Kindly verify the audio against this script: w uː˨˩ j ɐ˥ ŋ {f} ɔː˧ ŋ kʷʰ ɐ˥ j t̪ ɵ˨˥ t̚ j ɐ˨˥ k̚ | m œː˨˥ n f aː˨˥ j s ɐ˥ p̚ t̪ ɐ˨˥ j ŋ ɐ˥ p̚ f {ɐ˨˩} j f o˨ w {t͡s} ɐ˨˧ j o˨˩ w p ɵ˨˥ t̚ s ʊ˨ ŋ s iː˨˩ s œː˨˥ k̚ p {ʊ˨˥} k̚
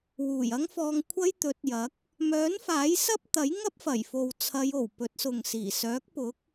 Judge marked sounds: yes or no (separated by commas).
yes, yes, no, yes